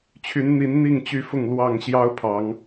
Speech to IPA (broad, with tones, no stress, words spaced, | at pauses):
t͡ɕʰy˨˦nn̪i˨˦n n̪i˥˨ŋt͡ɕy˥˨fʊ˥˨ŋ lwɑ˥˨ŋ ɕjɑ˦ʊ̯pʰɑ˨˦ŋ